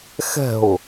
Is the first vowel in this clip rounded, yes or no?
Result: no